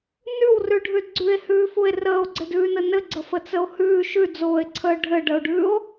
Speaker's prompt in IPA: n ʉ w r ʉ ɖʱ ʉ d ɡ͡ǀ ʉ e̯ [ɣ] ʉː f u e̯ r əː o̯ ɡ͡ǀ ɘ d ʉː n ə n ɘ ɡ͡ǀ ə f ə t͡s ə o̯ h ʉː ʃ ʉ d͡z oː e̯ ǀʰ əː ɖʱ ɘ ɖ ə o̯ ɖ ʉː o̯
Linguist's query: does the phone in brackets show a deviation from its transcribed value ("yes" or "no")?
yes